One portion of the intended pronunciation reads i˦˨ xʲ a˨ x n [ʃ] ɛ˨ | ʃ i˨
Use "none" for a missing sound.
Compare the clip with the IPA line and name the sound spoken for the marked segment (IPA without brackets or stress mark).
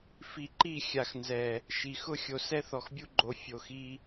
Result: z